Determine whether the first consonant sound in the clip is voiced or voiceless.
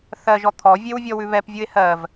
voiceless